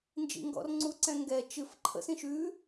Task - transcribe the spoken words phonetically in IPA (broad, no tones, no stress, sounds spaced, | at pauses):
n d͡ʒ ḭ ŋ ɡ ɔ̰ r ŋ͡ǀ u ǀ ɛ̃ ŋ ɡ ɛ t͡ʃ ɨ f ǃʰ ə̰ s ĩ ʃ ʉ